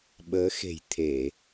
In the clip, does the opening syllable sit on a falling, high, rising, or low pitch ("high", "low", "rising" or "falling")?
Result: rising